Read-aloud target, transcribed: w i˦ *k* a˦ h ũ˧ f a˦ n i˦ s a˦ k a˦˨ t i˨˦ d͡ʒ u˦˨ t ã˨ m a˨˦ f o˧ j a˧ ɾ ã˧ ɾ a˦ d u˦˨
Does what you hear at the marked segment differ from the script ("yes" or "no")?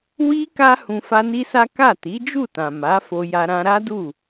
no